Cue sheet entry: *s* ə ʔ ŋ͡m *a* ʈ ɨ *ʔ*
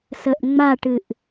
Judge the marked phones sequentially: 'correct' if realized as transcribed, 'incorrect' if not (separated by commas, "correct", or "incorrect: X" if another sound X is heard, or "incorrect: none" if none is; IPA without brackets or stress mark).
correct, correct, correct